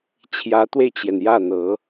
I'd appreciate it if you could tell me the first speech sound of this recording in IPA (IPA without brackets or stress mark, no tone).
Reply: t͡ɕʰ